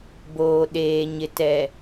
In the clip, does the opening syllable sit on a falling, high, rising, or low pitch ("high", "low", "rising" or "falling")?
low